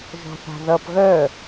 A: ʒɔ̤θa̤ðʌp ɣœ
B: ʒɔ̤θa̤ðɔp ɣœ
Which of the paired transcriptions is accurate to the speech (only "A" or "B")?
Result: A